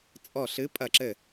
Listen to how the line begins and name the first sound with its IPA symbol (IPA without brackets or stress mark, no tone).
t͡sʼ